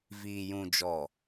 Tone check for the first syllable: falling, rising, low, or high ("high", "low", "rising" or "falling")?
low